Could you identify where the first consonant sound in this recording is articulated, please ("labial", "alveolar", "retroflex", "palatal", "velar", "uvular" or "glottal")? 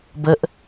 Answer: labial